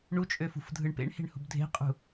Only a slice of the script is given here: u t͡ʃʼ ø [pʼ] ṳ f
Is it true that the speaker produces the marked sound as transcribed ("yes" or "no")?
no